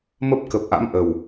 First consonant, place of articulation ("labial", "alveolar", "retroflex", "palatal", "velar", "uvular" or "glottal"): labial